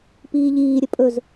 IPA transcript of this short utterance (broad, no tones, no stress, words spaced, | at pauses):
piːʎiːɾʲə pʼɵz